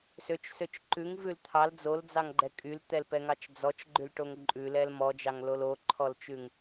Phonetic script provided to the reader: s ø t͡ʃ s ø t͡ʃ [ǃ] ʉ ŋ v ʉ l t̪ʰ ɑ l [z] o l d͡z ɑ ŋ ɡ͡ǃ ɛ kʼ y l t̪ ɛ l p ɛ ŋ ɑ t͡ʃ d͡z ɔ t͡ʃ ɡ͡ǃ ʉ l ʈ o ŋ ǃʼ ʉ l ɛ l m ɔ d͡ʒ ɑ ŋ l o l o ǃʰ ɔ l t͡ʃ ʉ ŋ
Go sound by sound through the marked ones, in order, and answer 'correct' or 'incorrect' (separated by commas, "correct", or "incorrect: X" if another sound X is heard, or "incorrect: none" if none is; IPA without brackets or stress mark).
correct, incorrect: d͡z